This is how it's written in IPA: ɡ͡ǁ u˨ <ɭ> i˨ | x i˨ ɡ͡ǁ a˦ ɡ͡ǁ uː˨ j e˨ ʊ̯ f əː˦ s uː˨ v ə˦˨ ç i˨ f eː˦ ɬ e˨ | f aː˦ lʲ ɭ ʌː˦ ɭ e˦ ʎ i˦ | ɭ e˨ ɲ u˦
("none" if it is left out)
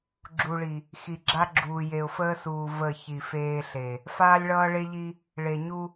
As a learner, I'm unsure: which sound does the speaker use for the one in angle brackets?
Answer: ɭ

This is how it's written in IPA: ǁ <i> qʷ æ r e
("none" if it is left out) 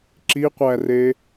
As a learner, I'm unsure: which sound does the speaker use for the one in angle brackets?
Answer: i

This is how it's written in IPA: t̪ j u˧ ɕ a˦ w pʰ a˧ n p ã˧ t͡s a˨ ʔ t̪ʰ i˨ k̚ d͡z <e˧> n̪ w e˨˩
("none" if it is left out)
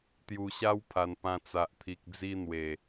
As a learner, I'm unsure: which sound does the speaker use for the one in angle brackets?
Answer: i˧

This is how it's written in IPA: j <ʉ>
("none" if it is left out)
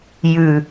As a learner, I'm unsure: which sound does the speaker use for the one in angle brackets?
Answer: ʉ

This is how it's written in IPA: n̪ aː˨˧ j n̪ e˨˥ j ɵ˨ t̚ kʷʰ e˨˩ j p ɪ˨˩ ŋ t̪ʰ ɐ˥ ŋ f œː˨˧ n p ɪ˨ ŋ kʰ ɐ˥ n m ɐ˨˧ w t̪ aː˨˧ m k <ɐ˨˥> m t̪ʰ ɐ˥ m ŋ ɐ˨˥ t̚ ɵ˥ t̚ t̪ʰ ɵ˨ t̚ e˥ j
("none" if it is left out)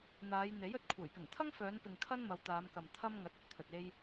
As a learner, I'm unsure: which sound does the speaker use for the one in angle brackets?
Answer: ɐ˨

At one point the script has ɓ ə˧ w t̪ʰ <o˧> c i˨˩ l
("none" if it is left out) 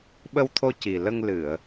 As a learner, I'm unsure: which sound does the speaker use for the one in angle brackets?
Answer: o˧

